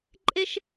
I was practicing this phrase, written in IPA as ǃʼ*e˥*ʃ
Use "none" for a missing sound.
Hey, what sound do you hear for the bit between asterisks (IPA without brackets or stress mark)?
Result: e˥